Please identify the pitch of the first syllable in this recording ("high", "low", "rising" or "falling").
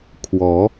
rising